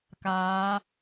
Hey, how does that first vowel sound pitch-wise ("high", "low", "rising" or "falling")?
rising